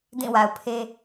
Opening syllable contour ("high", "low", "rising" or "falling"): falling